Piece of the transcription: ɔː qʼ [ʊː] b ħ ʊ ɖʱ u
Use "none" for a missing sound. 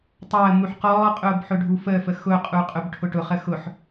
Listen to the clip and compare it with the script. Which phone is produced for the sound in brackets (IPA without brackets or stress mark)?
ʊː